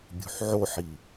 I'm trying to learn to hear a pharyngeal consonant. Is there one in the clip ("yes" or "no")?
yes